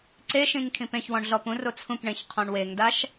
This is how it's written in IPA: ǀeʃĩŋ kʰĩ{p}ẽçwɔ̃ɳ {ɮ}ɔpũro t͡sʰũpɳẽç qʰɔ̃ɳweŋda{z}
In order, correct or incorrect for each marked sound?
correct, correct, incorrect

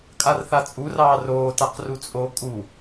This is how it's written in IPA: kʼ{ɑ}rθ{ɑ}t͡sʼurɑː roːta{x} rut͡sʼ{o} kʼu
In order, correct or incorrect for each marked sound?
incorrect, incorrect, incorrect, correct

